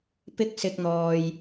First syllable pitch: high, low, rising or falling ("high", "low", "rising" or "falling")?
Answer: high